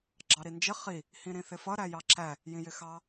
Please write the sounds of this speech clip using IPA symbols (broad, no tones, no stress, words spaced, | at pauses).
ɡ͡ǁɑɾind͡ʒɪ χi | hĩɾĩθɪfʌ ɾæjɑǁæ | jĩjɪxɑ